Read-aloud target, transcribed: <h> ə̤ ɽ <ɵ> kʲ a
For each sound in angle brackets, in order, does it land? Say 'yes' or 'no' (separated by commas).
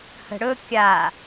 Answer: yes, yes